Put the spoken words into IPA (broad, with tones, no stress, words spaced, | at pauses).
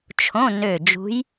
t͡ʃʰõ˧˥˧ nø˧˩d͡ʒṳ˧˥j